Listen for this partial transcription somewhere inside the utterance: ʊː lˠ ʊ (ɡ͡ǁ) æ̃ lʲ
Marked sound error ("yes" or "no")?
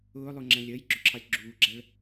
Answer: yes